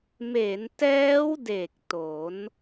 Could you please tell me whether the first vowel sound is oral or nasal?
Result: oral